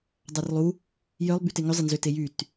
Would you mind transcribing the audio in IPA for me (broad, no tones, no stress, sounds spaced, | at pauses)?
dˤ a r lˠ u | j œ lˠ b y t e ŋ ʏ zˤ ɪ n z ʏ t e j y t